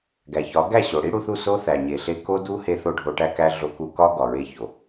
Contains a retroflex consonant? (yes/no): yes